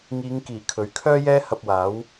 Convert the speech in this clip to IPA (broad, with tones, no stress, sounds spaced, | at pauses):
ŋ iː˨˧ ŋ k iː˨˩ kʰ ɵ˨ ɥ kʰ œː˥ j ɛː˥ h ɐ˧ p̚ w aː˨˥ w